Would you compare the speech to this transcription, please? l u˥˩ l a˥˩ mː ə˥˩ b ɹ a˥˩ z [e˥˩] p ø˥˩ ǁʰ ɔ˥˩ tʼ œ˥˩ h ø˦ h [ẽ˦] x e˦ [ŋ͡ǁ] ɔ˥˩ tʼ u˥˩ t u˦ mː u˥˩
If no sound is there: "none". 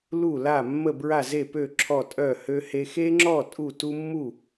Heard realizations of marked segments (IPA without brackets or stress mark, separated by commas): e˥˩, e˦, ŋ͡ǁ